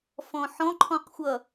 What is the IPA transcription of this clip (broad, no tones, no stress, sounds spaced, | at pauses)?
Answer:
f ɔ̃ ħ ɔ̃ ǃʰ ɔ̃ q xʷ ʌ